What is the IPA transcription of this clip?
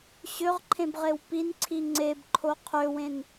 ɕ ø ʁ ǃʰ ẽ b ʁ e w p i n ǀʰ i ŋ͡ǀ e b ǃʰ o qʰ ø w ẽ n

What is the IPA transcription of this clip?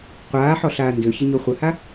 qʷ aː ħ ɔ ɬ aː n d ø ç ə ɲ o χʷ ə h a

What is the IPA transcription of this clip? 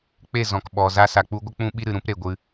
k͡p e˦˨ z ɔ̃˨ k ɓ ɔ˨ z a˧ s a˨ k͡p u˧ ɡʷ ə˦ k͡p ũ˦ ɓ i˦ ɾ ɨ˨ ɾ ũ˦ p ɾ e˨ ɡʷ ɨ˧

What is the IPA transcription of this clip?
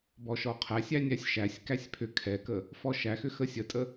b ɔ ʃ ɔ qʰ æ sʲ æ nʲ æ sʲ ʃ æ sʲ k æ sʲ pʰ ʏ kʰ ɛ k ə | f ɔ ʃ æ x ʏ x ə sʲ ə tʼ ə

